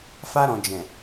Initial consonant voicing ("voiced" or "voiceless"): voiceless